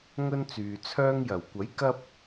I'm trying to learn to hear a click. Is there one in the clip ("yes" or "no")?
no